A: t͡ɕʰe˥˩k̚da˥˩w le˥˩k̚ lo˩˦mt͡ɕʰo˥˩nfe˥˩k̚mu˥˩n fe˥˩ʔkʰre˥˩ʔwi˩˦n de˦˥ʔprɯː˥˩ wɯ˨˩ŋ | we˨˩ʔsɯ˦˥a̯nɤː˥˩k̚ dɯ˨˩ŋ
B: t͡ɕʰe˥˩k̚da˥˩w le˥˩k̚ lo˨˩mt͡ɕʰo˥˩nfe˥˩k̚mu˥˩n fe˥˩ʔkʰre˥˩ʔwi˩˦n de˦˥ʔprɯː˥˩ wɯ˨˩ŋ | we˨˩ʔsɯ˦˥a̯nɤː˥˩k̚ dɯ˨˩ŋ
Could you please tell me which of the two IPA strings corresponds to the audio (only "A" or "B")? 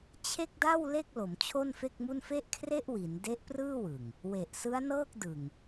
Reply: A